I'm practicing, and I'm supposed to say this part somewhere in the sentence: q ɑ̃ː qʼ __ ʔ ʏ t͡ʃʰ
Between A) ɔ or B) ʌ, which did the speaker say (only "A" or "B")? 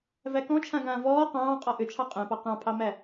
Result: A